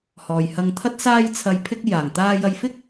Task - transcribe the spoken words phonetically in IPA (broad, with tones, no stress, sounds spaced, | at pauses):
h ɔː˨ j h ɐ˧ ŋ t̪ʰ ɐ˥ t̚ s aː˧ j t͡sʰ ɐ˨ j pʰ ɪ˧ k̚ j aː˨˩ ŋ t̪ aː˧ j ɐ˧ j f ɪ˥ k̚